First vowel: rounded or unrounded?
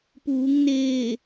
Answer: rounded